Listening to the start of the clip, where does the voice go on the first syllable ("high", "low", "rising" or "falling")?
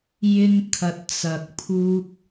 high